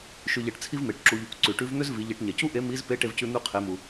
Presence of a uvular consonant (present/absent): present